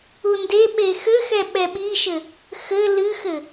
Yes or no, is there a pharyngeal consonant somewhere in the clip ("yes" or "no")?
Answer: no